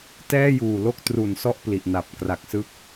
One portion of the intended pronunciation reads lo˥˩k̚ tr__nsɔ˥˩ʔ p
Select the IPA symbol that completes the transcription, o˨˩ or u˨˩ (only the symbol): u˨˩